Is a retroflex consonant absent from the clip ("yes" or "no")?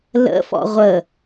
yes